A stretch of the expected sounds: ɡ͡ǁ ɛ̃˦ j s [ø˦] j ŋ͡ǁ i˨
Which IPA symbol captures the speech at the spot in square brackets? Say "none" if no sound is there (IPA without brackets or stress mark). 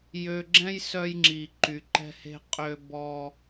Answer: œ˦